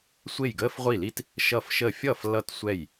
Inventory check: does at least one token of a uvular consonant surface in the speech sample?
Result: yes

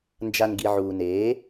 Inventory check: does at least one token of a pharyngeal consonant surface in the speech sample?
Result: yes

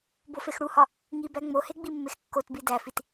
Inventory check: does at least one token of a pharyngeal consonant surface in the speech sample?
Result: no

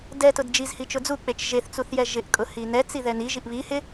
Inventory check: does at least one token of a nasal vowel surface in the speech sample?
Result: no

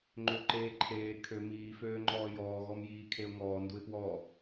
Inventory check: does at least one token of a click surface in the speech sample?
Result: yes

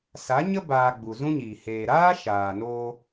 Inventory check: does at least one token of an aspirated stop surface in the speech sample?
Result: no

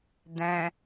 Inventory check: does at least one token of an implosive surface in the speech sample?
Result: no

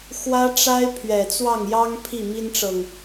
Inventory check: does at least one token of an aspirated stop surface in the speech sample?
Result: yes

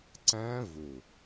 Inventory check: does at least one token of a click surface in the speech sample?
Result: yes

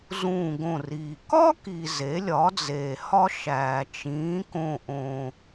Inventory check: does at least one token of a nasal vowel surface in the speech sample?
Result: yes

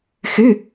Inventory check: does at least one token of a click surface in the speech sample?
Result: no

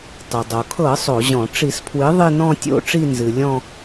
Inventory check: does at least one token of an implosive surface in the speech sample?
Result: no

